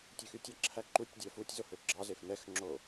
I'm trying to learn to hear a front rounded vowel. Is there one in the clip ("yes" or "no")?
yes